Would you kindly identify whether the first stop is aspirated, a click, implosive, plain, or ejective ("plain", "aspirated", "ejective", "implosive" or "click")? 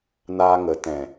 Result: plain